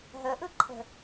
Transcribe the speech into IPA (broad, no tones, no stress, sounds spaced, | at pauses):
ɦ ə ʔ ɯ ǃʰ ə̤